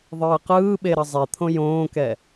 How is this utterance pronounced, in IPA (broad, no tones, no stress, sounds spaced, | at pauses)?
ðˤ ɯː q ɯː ɓ e ɾ ʌ zˤ e t̪ʰ õ j õː k ɛ